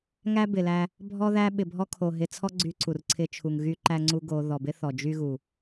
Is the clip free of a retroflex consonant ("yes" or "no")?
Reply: yes